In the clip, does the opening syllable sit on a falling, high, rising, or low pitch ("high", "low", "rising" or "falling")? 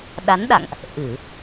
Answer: rising